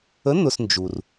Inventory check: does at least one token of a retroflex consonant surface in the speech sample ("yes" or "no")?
no